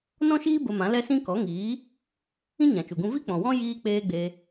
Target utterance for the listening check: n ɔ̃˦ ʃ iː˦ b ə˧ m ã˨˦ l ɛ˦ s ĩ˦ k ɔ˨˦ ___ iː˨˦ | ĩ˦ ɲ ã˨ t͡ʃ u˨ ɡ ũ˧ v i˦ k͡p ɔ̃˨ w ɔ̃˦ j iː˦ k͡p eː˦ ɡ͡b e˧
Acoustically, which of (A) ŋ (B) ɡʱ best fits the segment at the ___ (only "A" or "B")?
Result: A